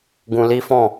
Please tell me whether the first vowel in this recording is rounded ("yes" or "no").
yes